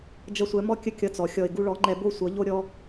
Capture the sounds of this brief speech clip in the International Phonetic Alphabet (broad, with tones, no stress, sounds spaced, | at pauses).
d͡ʒ ʌ˧ sʷ ɛ˨˦ m ɔ˦ kʲ ə˦ kʲ ʌ˧ t͡s ɔ˨ xʲ ɔ˧ ɪ̯ ɡ u˧ ɭ ɔ˨˦ ŋ͡ǃ ɛ˧ b o˦ sʷ ʌ˨˦ ʎ o˦ ɾʲ ɔ˦